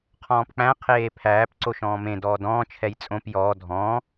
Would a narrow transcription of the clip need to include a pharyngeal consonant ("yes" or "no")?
no